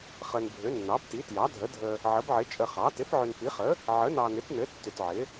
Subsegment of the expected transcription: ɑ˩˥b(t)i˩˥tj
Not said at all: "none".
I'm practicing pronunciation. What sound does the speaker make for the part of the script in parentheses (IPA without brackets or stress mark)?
t